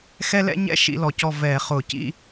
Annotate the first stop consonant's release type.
plain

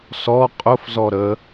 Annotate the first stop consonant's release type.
ejective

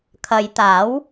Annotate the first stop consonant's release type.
aspirated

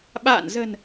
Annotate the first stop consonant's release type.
implosive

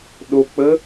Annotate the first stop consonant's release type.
implosive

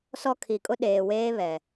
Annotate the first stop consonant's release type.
aspirated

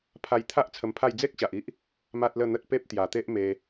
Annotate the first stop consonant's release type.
aspirated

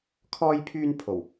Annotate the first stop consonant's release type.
aspirated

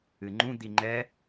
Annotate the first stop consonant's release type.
click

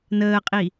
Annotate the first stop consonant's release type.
ejective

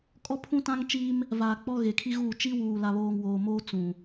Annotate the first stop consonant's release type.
ejective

